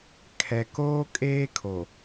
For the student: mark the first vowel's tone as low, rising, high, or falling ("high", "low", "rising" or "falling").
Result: low